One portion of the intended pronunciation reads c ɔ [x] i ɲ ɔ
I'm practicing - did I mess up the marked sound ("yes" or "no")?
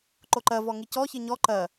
yes